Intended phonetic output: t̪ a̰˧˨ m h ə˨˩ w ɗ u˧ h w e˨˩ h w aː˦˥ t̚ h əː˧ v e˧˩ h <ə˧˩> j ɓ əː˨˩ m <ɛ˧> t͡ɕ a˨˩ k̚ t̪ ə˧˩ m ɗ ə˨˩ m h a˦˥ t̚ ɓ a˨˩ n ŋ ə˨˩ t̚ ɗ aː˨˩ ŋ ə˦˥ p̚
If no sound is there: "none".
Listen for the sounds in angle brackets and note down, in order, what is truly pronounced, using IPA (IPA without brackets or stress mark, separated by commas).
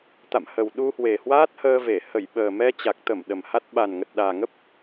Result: ə˧˩, ɛ˧